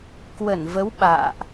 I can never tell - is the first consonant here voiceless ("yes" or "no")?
yes